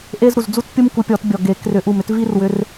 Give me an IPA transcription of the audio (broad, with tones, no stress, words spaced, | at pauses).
ʔe˦z ɾu˨˩zd͡zu˦t pʲu˦mku˨˦ pʲɔ˨˩˦tbʲɔ˨˩ɡe˨˩˦ krʏ˨˩˦ ʔu˨˩mʏ˨˦tvi˦rwʏ˨˦r